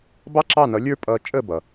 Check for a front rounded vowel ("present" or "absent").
absent